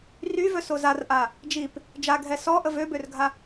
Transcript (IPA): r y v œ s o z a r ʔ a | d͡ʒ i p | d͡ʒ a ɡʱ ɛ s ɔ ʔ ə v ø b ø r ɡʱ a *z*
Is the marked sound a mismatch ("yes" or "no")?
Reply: yes